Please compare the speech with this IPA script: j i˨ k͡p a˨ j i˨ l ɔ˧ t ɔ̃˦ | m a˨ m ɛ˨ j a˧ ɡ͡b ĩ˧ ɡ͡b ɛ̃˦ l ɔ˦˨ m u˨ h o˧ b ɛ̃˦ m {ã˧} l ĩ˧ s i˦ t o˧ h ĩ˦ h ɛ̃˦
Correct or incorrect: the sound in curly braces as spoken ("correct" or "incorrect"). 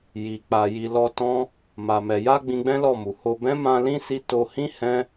correct